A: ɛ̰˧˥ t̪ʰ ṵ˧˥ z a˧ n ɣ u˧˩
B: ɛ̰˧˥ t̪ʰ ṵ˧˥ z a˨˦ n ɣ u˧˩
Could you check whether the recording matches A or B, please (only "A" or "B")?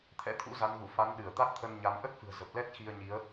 B